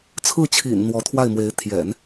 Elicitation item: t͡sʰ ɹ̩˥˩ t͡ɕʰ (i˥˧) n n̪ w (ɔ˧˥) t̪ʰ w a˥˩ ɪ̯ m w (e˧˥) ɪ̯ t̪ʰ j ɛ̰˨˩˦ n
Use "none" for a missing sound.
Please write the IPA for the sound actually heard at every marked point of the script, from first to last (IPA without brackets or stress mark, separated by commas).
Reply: ḭ˨˩, ɔ˧˥, e˧˥